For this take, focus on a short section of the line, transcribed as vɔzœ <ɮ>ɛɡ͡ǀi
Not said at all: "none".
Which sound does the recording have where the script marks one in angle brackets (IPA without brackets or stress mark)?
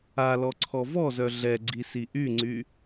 ɮ